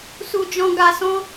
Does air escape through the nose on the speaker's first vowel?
no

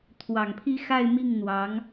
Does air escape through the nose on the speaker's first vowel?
no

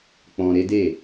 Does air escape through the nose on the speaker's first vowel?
yes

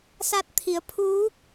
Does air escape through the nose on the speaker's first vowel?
no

